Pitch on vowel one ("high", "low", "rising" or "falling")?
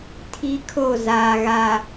high